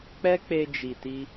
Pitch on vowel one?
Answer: high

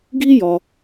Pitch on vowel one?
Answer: high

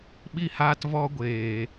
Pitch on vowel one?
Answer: high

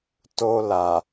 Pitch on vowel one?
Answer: high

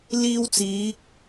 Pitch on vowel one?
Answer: high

